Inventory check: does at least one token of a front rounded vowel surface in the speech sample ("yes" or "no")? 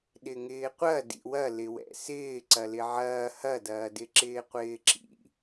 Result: no